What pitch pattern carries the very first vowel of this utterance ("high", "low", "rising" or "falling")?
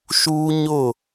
high